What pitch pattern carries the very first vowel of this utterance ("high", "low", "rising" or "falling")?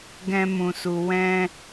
high